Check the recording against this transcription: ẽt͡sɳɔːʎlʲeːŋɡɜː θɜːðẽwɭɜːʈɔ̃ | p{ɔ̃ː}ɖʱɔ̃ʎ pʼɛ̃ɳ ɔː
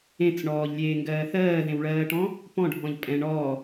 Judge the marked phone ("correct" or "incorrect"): incorrect